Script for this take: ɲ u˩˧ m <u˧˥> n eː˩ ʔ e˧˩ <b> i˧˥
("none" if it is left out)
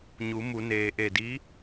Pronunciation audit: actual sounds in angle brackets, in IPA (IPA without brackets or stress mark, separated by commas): u˩˧, d